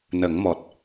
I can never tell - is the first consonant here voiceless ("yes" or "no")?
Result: no